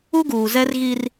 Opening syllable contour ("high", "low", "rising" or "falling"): high